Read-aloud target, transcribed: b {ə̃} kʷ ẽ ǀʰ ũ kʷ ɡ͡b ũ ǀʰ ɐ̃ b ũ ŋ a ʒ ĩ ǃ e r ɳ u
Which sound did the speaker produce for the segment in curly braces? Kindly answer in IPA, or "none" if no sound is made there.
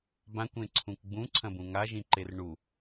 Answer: ã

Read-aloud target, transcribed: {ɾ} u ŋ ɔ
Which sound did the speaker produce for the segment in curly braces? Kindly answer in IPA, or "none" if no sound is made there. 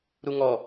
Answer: ɾ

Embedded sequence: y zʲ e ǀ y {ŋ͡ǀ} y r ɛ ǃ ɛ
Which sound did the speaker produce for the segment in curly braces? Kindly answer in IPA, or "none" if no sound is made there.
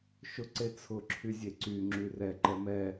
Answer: ŋ͡ǁ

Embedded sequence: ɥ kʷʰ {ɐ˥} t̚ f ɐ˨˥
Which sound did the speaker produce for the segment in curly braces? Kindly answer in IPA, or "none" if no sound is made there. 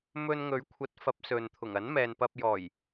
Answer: ɐ˨˥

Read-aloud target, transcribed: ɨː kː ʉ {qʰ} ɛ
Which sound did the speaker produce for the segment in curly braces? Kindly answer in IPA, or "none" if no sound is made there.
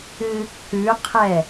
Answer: qʰ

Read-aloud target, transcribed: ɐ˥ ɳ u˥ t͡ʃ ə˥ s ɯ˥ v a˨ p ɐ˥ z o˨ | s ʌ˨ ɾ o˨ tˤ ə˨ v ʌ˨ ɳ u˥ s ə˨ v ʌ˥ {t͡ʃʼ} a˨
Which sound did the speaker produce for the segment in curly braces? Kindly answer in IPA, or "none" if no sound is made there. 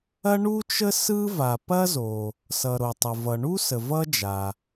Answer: d͡ʒ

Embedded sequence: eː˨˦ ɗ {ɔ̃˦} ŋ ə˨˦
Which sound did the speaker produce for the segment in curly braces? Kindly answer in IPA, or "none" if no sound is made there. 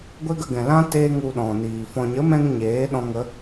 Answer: ɔ̃˧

